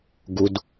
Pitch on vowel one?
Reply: low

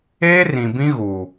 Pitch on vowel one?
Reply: high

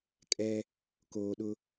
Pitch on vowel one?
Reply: high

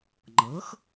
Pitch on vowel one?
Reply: rising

